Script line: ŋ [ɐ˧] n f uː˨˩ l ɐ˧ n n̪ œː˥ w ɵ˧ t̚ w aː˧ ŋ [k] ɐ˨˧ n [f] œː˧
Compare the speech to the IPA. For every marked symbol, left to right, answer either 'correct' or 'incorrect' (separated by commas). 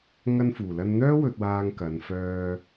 correct, correct, correct